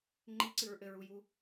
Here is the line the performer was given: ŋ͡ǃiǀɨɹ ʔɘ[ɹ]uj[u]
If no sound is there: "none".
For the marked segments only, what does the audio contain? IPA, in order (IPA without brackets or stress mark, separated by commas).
ɹ, u